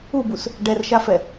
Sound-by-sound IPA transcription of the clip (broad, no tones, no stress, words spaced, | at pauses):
ubus | ɖɛrʃafɛ